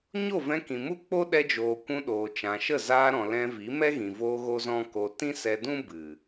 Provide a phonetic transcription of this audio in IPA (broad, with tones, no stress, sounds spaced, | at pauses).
ɲ o˦˨ v ɛ̃˧ k ĩ˨ m u˦ k͡p o˦ ɗ ɛ˧ d͡ʒ oː˨ kʷ ũ˧ ɗ oː˨ t͡ʃ ã˨ ʃ ə˦˨ z aː˧ ɾ ɔ̃˨ l ɛ̃˧ v i˨˦ m ɛ˦ ɣ ĩ˨ v oː˧ ɣ o˦ z ɔ̃˦ k o˧ t ĩ˦ s ɛ˧ d ũ˦ b ɨ˨